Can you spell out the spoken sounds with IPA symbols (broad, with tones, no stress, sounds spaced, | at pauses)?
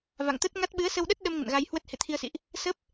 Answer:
v a̰˧˨ ŋ t̪ ə˦˥ t̚ ŋ a˦˥ t̚ ɓ ɨ˨˦ ə̯ s ə˧ w ɗ ə˦˥ t̚ ɗ ə˧ m ŋ ə̰˧˨ n ɣ a˧ j h w ə˦˥ t̚ h ḛ˧˨ t̪ʰ i˧ ə̯ s ḭ˧˨ ʔ | s ə˦˥ p̚